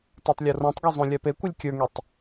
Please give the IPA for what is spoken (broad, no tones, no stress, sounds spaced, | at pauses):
t a tˤ lʲ o r õ tˤ ɡ o zˤ õ lʲ a p e kʷ ɯ lʲ kʲ ə˞ ŋ e tˤ